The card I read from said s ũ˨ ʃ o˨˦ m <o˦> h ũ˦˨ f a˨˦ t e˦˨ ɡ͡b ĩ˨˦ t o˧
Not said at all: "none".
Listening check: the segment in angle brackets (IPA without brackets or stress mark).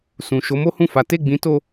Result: o˦